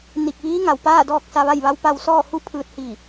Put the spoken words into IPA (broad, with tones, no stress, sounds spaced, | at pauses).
n i˧˩ k̚ ʋ iː˧˥ ŋ a˩ w p aː˥˨ d ɔː˥˨ k̚ s a˧ ʋ a˥˨ j ʋ a˧˥ w p a˧ w s ɔː˥˨ h u˥˨ pʰ ɯː˧ t̚ h i˧˩